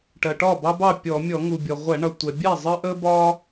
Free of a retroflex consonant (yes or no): no